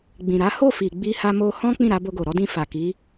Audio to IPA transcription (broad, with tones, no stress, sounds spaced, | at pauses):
ɡ͡b ĩ˨ ɾ a˨˦ h o˦˨ f i˨ ɡ͡b i˧ h a˧ m o˧ h ɔ̃˦ k͡p ĩ˦˨ ɾ a˧ b o˧ ɡ o˨ ɾ ɔ˨˦ d ĩ˧ f a˨ k i˨˦